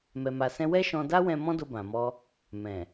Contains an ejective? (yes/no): no